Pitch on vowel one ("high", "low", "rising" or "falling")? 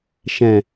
low